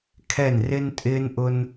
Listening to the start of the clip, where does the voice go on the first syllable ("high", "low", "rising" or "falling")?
falling